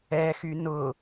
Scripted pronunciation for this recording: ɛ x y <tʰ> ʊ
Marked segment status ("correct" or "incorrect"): incorrect